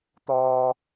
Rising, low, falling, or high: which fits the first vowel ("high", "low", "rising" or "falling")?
high